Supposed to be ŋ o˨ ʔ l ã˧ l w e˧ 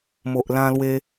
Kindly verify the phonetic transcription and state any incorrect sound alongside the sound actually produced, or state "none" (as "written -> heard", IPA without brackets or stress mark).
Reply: ŋ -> m